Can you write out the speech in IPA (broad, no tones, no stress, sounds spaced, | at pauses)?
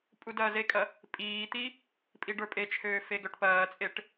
pʼ u d ɐː z e kʼ ɐ | pʼ iː t̪ i | pʼ i ɖ ə˞ pʼ e t͡ʃʰ øː f e ɡ œ ʈ p ɐː t͡sʼ e ʈ